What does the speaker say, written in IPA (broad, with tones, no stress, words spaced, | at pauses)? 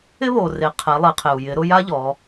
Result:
ɪ˥βo˩re˩˧ qʰɛ˩˧lˠe˩˧qʰɪ˩u̯ jɪ˩˧ɾʊ˧ ja˥ʎɔ˩˧